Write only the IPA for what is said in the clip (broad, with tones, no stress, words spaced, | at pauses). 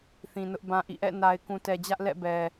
θĩ˨nʊ˦ʔbã˦ʔḭ˦˨ ʔɛ̰˦˨na˨ɪ̯ kũ˨tɛ˨d͡ʑä˦ʔlɛ̰˦˨ bɛ˨